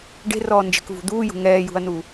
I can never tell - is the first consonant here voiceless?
no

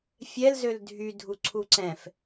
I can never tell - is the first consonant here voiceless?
yes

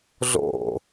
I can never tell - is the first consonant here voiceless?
no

